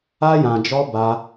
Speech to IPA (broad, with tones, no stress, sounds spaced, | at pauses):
a˧ j ã˨ d͡ʒ ɔ˧ b a˧